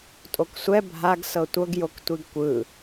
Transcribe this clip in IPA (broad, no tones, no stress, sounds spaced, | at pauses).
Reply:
tʼ o k sʷ ɛ bʱ a ɡ s ɤ tʷ ɤ ɡ j o k tʷ i ɡ kʷ ɯ